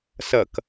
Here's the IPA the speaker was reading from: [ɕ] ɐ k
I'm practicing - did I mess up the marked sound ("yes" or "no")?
yes